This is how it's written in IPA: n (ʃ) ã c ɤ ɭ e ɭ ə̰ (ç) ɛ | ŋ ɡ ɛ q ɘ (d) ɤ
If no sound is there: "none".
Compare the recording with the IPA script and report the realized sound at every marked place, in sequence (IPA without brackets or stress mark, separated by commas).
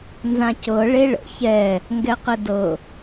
z, ç, d